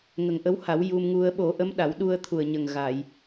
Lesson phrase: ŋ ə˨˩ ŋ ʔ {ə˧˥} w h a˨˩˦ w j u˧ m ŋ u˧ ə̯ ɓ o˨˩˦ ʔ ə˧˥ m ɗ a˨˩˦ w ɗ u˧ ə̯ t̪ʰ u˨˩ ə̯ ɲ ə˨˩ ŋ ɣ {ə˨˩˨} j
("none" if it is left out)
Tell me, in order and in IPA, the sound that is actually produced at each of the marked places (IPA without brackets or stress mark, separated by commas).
ə˧˥, a˨˩˨